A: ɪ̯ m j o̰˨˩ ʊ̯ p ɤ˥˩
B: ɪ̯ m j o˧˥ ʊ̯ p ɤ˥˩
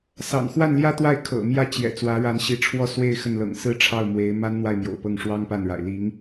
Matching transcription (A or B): A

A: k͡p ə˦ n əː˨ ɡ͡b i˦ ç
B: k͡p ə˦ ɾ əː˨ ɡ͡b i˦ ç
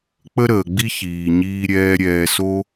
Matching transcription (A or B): B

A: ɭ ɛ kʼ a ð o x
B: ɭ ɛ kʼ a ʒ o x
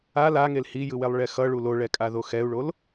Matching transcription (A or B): A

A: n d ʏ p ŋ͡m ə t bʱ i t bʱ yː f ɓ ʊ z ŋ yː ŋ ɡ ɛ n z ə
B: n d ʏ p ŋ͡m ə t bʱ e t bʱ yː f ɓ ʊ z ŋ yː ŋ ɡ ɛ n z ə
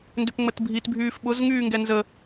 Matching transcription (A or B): A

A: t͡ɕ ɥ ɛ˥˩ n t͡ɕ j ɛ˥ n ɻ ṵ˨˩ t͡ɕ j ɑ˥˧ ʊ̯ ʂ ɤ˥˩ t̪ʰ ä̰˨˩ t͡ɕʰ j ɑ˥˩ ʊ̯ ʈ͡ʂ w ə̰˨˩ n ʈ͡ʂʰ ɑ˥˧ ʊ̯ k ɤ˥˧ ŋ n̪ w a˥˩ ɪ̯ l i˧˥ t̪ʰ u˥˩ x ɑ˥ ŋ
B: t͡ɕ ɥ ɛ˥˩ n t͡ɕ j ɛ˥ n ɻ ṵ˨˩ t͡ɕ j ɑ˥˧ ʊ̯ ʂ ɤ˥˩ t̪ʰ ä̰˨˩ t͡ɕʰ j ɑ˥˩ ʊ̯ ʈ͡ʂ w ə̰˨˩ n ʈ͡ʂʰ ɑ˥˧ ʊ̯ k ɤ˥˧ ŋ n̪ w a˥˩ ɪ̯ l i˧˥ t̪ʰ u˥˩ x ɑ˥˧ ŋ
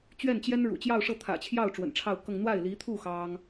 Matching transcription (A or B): A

